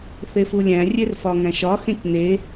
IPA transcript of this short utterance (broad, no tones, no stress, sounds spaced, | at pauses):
θ e f u lʲ æ̃ rʲ e r f ɒ ŋ æ̃ ʃ ɒ x ẽ c n e